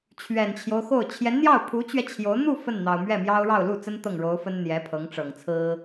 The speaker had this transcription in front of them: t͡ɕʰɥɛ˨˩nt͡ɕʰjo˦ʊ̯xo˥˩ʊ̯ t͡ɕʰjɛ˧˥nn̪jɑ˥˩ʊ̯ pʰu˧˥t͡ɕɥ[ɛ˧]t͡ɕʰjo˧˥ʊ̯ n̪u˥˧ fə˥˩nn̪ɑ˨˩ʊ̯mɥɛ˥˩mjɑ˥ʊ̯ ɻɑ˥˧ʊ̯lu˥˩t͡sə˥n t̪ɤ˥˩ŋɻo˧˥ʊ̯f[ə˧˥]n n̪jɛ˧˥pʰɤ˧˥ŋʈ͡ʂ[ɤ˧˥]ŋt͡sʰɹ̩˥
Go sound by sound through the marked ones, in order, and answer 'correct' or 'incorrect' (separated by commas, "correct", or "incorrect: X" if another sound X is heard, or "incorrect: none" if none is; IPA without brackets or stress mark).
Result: correct, incorrect: ə˥, incorrect: ɤ˨˩